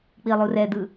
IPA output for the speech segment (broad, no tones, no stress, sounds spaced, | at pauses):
k͡p i lˠ u r ɛ d̪ ɯ